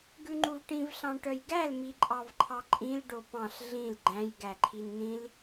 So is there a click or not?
yes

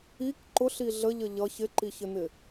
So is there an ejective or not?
no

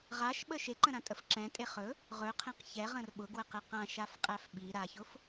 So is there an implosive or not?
yes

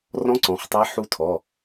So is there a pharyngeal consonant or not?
yes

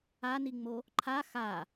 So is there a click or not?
yes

